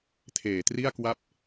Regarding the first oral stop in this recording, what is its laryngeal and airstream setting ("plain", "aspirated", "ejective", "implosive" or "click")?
aspirated